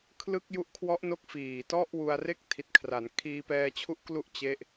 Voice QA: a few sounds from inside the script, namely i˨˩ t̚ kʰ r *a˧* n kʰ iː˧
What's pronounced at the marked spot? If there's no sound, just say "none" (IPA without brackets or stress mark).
a˩˦